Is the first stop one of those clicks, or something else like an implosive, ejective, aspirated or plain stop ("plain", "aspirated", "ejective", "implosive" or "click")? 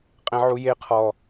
ejective